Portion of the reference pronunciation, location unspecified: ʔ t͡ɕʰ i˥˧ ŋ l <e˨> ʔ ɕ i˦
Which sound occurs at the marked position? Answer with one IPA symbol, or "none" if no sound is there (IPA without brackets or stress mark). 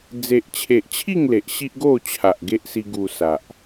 e˨